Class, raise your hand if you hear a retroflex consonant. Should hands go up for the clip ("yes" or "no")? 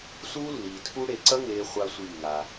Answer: yes